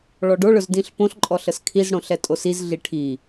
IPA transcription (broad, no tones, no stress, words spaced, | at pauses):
ɭɔɖo ɭɵzdĩɬpõɬ ǃʼɔɬəskʰiz ɽõɬɛtʼosiz ɮiʈʰi